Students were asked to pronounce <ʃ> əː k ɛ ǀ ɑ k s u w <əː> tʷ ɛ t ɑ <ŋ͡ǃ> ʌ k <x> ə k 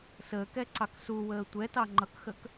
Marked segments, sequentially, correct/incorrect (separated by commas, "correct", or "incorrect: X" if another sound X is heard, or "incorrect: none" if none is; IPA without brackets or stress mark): incorrect: s, correct, correct, correct